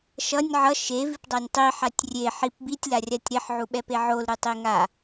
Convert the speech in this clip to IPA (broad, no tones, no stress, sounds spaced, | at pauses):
ʃ ʌ nʲ ʕ ʌ ʃ e v i p dˤ a nʲ tˤ i ħ a tʲ rʲ e ħ i p b i tʲ l a rʲ a tʲ ɾ e ħ ʕ u ɓ ɛ p e ʕ o l ɾ ɯ tˤ e ŋ a